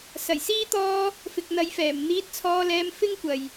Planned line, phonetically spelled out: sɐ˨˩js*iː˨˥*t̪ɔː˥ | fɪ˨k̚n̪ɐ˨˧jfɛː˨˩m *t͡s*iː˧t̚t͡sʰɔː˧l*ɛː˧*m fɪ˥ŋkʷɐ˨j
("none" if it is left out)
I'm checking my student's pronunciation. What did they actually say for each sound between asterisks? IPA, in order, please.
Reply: iː˥, n̪, ɛː˧

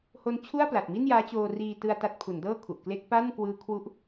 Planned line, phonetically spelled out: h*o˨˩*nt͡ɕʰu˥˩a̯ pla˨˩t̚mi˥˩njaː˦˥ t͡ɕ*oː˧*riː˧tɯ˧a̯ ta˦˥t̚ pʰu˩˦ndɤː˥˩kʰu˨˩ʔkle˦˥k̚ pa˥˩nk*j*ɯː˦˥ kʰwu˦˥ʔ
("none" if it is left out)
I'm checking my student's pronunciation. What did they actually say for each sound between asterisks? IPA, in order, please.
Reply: o˦˥, oː˧, w

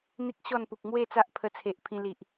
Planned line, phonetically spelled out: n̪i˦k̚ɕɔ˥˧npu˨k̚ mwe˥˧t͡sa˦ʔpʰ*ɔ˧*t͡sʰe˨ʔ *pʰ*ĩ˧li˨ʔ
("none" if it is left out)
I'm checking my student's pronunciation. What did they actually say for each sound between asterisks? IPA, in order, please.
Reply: ə˧, pʰ

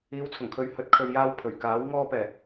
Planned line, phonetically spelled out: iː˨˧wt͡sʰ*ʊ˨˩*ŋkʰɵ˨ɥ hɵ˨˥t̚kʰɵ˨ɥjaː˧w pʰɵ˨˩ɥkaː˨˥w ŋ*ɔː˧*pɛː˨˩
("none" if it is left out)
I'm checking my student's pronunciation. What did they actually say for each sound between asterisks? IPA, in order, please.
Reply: ʊ˨˩, ɔː˧

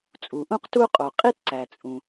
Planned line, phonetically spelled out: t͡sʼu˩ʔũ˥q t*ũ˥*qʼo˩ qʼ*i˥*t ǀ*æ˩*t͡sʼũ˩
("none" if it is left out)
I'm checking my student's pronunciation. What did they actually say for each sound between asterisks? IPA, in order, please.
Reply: u˥, i˥, æ˩

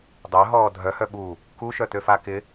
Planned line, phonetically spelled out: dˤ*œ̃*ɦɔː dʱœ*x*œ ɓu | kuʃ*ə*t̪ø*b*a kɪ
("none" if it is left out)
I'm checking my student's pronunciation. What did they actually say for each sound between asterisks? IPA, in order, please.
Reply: œ, h, œ, f

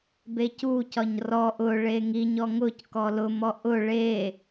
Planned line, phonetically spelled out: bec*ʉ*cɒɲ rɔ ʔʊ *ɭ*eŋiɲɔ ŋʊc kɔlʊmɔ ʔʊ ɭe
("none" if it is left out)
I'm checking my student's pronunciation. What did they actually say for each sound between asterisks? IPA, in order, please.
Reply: u, ɭ

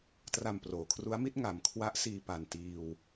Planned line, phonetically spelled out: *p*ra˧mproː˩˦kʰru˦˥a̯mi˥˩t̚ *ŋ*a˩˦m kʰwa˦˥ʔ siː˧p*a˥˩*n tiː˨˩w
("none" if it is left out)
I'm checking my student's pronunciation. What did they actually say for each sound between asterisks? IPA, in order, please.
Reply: t, ŋ, a˨˩

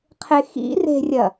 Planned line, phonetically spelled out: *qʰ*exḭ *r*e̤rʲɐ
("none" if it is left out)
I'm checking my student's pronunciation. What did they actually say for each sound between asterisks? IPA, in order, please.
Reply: qʰ, r

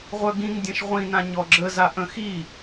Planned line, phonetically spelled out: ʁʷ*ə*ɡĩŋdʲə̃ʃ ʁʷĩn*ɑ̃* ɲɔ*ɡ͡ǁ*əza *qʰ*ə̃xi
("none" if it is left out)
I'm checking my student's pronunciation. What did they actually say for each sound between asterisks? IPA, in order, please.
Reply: œ, ã, ɡ͡ǁ, ʔ

